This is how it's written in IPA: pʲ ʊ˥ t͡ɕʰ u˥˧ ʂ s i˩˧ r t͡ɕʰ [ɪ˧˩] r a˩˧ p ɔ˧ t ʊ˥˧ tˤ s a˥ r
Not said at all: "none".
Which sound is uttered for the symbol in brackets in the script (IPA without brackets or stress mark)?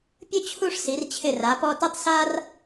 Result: ɪ˧˩